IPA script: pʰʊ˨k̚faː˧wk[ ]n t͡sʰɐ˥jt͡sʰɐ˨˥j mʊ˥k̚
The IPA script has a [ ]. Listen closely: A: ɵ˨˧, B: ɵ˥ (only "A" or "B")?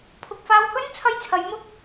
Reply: B